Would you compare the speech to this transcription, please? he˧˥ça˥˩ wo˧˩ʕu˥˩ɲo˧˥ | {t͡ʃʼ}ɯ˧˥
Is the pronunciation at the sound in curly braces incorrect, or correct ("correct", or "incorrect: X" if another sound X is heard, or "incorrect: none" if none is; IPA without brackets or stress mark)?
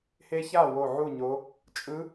correct